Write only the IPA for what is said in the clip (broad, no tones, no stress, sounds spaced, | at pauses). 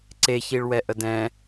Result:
ǀ e ç i ɭ w ɛ ʔ ə d ɛ̃